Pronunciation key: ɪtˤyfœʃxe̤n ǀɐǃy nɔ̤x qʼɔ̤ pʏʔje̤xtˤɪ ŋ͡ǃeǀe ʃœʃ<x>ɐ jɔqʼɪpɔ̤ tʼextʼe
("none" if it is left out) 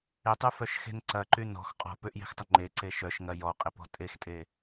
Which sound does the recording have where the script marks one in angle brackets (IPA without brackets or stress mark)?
ŋ